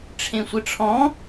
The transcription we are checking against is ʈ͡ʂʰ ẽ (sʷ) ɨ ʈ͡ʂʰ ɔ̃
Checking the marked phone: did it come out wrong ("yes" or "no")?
no